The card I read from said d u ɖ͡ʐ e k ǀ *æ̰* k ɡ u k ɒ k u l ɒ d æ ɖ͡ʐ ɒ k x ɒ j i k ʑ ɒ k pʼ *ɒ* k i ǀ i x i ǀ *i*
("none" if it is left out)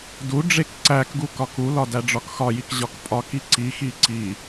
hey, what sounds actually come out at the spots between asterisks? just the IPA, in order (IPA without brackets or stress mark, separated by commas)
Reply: æ, ɒ, i